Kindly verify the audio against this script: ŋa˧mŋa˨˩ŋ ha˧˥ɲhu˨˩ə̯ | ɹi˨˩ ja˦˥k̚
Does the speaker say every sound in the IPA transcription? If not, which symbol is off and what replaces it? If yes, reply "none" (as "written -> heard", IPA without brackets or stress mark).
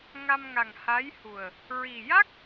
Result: ɲ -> j